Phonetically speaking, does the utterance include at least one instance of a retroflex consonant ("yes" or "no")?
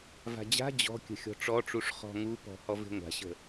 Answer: yes